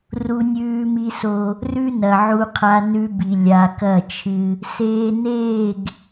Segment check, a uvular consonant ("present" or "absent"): present